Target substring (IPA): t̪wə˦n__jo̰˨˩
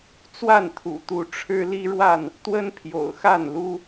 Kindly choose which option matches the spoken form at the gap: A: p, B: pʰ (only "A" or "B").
B